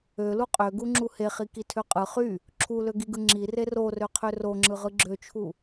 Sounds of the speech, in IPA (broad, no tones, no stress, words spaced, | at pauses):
ølu qʼøɡuŋ͡ǁu heχikitʰø qʼɯ χy | ǁʰuløɡiɡɯ ŋ͡ǁire rorøqʰø roŋ͡ǁɯʁɯ ɡ͡ǁøt͡ʃʰu